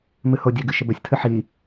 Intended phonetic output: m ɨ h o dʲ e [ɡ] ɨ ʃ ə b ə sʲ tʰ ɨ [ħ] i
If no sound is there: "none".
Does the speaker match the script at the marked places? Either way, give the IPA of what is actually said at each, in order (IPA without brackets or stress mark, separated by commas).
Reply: ɡ, ħ